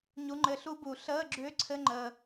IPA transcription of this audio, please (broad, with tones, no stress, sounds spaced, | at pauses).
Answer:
ɲ u˨˦ ŋ͡ǃ ɘ˨˦ ɬ u˦˥ b u˨˩˦ ɬ əː˧˥˧ ɡ͡ǁ ʏː˦˥ ǀʰ ɘ˧˥˧ ŋ͡ǃ əː˨